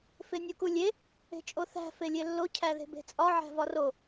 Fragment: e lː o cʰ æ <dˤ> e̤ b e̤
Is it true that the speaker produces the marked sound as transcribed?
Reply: no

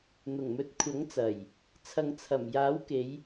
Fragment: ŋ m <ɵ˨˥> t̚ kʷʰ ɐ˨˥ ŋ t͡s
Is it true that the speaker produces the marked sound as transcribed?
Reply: no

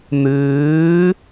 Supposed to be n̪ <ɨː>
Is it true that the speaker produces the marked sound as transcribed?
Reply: yes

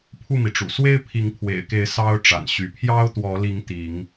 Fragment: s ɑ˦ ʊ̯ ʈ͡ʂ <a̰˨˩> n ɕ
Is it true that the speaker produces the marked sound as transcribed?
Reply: yes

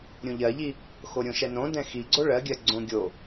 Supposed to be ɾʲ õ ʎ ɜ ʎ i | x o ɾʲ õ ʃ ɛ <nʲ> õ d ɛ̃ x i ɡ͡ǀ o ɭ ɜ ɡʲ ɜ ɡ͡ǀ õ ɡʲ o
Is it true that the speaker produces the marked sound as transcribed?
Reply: no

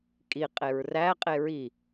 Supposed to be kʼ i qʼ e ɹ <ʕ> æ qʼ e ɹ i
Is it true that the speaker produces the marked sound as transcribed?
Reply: no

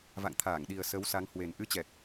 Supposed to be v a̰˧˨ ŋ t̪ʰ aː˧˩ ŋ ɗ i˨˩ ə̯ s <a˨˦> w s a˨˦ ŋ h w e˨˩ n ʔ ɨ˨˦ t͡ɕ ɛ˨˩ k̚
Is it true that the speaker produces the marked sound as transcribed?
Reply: no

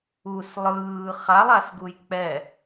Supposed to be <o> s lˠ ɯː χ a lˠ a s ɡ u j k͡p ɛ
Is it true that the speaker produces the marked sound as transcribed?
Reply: no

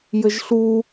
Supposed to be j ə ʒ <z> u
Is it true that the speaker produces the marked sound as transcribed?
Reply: no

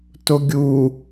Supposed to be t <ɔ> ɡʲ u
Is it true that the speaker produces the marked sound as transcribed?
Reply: no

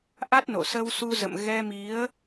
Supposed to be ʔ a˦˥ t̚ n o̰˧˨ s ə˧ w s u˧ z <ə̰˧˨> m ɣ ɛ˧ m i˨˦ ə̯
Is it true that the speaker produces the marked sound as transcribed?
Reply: yes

